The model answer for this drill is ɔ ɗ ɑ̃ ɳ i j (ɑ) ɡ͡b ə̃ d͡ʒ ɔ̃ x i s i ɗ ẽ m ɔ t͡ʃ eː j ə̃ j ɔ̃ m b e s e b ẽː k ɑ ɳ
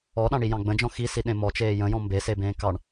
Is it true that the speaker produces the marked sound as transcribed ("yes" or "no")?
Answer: no